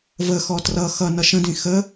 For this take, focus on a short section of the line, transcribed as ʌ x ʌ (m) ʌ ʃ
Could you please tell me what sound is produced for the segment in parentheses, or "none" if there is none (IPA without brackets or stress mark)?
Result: n